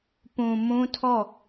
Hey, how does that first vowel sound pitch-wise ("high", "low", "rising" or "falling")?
low